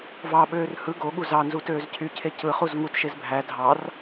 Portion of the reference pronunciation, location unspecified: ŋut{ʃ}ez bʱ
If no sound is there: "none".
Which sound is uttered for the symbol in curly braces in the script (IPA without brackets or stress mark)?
ʃ